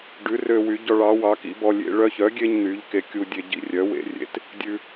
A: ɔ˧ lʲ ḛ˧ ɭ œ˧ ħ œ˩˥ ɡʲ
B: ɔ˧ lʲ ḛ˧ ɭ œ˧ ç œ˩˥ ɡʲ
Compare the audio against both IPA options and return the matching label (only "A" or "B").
B